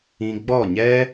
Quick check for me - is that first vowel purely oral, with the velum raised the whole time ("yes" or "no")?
no